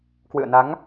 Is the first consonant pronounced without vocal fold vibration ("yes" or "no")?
yes